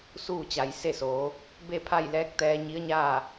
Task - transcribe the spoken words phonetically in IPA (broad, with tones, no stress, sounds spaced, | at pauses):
s uː˥˨ t͡ɕ a˩˧ j s e˥˨ s oː˩˧ | b e˥˨ pʰ a˥˨ j l ɛː˧˥ k̚ t̪ ɛː˧ ɲ i˧˥ ə̯ ɲ aː˥˨